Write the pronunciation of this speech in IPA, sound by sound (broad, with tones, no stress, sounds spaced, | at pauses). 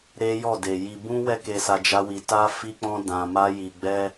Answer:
ɾ e˦ j ɔ˦˨ d e˨ j i˧ b ũ˦ w ɛ˦ k e˧ s a˧ d͡ʒ a˦ w i˧ t a˦ f i˦ k͡p ɔ̃˦ d ã˧ m a˦ j i˧ ɡ͡b ɛ˦